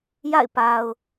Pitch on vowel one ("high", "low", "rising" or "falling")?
falling